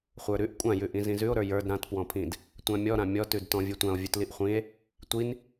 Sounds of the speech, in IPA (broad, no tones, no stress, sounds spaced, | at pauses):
χʷ ə˞ ɾ ʉ ʔ kʷʼ ã j ʉ ʔ ĩ z ĩ z ʉ o̯ ɾ ə˞ j ə˞ d ɾ ã t p w ɔ̃ pʰ ĩ d | tʷ ã mʲ ɔ ɾ ã mʲ ɔ t ʉ d t ɔ̃ vʲ ʉ tʷ ã o̯ vʲ ʉ t l i ʔ χʷ ĩ e̯ | tʷ i n